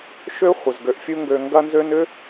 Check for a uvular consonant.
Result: present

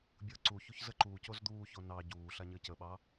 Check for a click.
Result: present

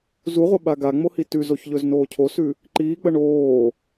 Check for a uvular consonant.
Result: present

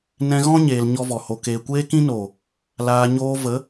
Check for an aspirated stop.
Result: absent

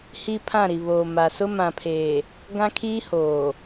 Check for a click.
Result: absent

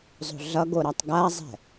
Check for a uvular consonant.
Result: absent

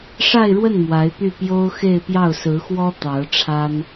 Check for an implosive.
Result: absent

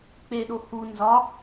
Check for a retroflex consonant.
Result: absent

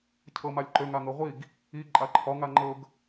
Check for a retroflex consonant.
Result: absent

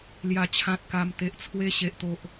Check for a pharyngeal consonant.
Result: absent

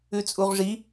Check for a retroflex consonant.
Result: present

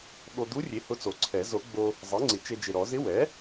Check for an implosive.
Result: present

